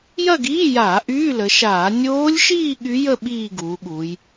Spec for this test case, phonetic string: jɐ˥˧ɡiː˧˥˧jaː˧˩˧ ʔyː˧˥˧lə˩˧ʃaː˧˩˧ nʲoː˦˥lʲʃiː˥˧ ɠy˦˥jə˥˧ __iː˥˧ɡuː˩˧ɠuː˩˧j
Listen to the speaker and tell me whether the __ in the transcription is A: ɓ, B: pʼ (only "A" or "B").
A